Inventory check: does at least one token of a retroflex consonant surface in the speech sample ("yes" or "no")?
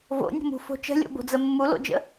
no